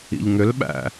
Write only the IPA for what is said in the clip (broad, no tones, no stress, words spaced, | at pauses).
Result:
ḭʎŋʏlɓæ̰